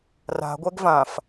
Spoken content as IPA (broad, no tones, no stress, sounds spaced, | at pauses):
r a̤ ɡʷ ɛ ɡ v ã f